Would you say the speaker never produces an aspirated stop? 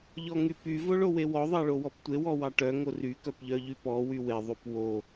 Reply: yes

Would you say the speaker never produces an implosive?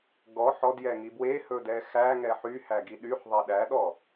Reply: no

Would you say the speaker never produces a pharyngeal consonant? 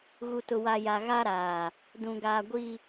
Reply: yes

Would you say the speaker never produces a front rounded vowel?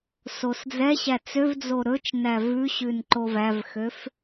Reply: no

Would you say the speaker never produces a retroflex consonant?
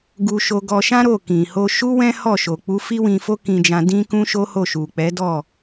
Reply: yes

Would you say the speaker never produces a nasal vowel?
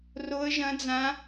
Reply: no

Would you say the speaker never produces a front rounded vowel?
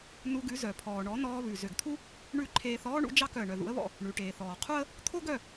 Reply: no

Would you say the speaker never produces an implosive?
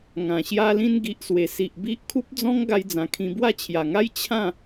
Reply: yes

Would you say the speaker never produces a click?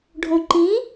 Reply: no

